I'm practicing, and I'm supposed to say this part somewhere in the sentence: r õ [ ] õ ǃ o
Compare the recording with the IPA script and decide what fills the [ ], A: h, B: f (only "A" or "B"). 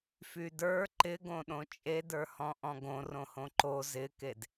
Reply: A